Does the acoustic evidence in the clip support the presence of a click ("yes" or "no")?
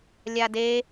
no